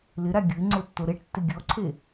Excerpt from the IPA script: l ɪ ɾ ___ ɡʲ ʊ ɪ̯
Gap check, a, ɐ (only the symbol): a